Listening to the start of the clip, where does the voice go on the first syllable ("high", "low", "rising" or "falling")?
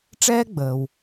high